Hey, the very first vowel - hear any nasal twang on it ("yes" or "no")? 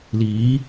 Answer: no